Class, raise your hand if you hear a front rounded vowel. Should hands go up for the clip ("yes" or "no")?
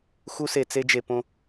no